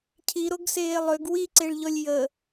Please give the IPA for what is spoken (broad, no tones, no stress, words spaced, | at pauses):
cʰi ɾoɡseːlˠøɡ wiǀeɭʎɔlʲ jə